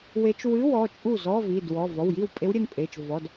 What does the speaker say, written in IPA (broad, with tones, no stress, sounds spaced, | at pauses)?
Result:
w e˧˥ t͡ʃ w ɨ˧˥˧ w ɔ˩˧˩ t͡ʃʼ u˥˩ z ɔ˧˥˧ v i˩˧˩ d w ɔ˩˧˩ v ɔ˩˧˩ w j i˥˩ w pʼ e˧˥ w ɾʲ ɘ˩˧˩ n pʼ e˩˧˩ t͡ʃ v ɔ˩˧˩ d